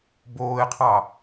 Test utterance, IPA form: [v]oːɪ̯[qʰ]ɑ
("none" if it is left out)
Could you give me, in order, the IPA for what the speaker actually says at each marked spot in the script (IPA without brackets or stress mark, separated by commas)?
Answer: b, qʰ